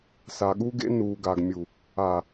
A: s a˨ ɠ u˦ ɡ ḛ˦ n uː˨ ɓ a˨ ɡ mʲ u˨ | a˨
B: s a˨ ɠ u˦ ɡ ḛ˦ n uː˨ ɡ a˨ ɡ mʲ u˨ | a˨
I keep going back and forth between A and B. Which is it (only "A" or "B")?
B